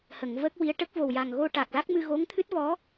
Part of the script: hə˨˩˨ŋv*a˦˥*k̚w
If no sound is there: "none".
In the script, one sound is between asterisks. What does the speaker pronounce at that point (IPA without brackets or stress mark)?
ə˦˥